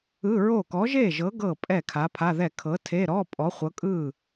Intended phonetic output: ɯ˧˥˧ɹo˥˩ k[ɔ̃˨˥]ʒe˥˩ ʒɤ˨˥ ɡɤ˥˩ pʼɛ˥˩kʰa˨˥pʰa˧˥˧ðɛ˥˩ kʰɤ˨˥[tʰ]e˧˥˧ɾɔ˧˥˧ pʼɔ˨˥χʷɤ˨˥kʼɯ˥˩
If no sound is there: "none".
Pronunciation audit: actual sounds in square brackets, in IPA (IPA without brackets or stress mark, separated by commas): ɔ˨˥, tʰ